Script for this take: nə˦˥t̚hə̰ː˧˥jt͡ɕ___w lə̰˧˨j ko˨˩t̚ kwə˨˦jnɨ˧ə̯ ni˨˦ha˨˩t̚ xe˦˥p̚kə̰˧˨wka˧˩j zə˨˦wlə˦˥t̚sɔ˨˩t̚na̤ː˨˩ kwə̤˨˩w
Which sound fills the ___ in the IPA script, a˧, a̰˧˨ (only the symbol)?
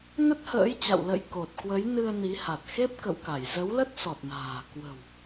a̰˧˨